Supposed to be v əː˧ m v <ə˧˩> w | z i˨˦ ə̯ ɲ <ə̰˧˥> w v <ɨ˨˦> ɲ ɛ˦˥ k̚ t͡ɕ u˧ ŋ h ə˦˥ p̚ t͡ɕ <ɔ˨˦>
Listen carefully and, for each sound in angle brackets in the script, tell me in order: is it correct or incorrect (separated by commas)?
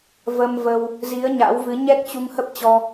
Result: incorrect, incorrect, correct, incorrect